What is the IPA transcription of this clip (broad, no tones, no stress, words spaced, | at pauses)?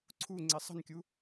ǀʰu ŋ͡ǀesˤə̤nkʲu